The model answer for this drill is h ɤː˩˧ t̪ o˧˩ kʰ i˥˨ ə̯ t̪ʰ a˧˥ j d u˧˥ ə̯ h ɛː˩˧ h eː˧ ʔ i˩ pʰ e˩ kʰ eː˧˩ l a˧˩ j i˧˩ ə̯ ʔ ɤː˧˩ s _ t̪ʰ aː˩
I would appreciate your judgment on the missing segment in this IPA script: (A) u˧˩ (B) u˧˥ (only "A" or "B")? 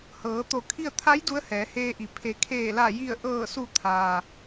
A